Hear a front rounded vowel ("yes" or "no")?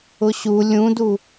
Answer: no